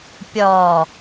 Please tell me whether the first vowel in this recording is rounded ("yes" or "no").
yes